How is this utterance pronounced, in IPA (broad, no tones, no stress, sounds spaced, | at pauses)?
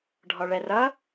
ɖʱ ɔ ɭ ɛ r ʌ